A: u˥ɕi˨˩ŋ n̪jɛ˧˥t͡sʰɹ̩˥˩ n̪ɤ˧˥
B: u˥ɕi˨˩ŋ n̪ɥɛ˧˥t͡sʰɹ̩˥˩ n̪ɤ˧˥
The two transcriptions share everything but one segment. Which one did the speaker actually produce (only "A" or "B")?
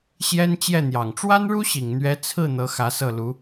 B